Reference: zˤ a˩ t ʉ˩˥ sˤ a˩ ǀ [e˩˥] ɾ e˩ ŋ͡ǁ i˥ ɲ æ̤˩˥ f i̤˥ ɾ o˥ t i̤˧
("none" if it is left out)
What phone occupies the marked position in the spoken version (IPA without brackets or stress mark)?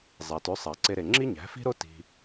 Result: e˧